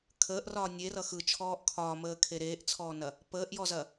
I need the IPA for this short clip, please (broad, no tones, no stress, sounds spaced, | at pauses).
kʰ əː ʔ r ɒː nʲ e r ʌ x ɯ t͡ʃʰ ɔː ʔ kʰ ɒː m əː kʰ e ɾ eː ʔ t͡sʰ ɔː n ɐ | p əː ʔ j ɔ z ɐ